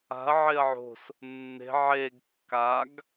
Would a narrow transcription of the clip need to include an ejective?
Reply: no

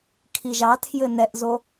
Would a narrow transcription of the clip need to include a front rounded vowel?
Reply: no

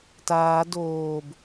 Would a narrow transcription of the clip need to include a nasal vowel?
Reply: no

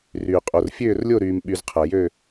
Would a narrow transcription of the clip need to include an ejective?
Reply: yes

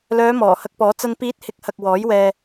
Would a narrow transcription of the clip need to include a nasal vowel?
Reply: no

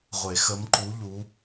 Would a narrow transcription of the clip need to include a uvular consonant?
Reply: yes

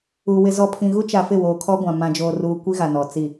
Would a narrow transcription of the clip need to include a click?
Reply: no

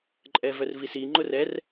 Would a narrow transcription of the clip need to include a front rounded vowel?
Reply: yes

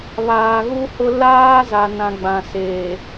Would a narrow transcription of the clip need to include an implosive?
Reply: no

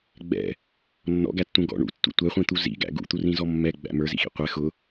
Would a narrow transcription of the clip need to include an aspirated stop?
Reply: no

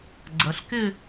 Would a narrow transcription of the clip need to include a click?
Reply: yes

